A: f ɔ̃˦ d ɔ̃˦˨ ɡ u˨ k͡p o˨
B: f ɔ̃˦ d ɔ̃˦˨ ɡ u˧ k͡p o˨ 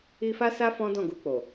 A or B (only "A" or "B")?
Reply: B